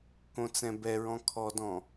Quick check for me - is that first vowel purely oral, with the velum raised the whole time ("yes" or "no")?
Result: no